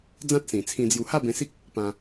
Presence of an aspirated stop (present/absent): present